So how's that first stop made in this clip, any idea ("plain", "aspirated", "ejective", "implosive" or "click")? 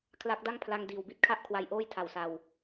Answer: aspirated